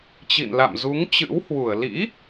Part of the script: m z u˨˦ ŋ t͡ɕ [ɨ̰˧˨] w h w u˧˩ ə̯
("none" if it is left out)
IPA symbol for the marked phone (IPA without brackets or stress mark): ɨ̰˧˥